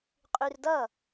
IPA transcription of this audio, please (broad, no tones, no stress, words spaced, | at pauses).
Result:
qʼyrdʌ